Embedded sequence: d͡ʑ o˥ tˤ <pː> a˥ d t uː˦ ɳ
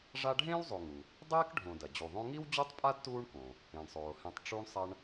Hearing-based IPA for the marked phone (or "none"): pʼ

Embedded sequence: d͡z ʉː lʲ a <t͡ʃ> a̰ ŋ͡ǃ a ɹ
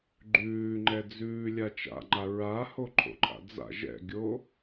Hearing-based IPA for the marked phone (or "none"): t͡ʃ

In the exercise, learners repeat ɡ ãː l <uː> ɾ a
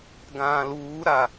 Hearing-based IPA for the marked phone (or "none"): uː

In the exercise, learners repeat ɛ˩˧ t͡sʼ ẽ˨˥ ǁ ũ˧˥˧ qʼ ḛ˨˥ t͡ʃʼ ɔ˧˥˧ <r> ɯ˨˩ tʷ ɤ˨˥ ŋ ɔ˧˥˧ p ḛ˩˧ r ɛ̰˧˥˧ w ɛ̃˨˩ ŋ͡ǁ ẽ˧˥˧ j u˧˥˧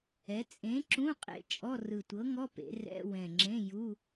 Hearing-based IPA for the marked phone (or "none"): r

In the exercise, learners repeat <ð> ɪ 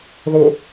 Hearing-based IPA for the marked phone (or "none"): ð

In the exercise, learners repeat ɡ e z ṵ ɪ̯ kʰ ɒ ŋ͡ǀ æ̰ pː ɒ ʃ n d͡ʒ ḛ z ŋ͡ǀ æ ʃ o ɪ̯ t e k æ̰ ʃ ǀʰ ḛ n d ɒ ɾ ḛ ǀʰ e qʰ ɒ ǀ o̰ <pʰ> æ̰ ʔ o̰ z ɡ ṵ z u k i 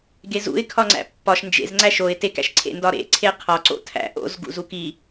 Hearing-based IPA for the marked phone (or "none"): tʰ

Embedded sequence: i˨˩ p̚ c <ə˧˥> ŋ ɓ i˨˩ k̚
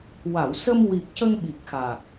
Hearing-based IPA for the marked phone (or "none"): ə˧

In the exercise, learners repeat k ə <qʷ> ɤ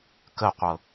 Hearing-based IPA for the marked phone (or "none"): qʷ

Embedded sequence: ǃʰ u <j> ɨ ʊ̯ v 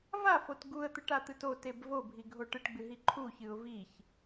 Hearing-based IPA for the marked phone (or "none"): ç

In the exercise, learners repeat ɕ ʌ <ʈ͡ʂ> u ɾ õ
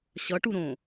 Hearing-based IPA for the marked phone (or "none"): ʈ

